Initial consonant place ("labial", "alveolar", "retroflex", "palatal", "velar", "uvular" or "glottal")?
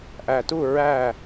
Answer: glottal